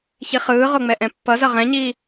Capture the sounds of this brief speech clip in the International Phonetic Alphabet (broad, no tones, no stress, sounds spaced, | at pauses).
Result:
ç i χ ɯː ʁ o ŋ͡m ɛ ʔ ɛ̃ pː ʌ z ʌ ʁ ɛ̃ ɲ iː